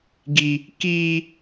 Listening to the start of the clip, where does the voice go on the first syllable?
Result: high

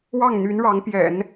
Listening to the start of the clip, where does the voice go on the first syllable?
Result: falling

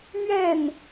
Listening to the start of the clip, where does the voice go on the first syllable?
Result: falling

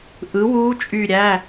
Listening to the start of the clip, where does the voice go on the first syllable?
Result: rising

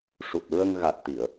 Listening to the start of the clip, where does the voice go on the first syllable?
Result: low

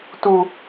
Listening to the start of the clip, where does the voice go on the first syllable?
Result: high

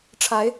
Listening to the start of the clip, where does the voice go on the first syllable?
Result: rising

